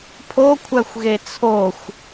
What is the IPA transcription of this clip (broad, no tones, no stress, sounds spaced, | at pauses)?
pʰ o kʷʰ æ xʷ ɣ e t͡sʰ o xʷ